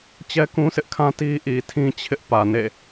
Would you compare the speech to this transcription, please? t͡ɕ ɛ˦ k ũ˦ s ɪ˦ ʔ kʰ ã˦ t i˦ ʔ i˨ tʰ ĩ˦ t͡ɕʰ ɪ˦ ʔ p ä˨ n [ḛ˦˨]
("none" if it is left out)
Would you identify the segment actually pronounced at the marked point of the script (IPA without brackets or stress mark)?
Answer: ḛ˦˨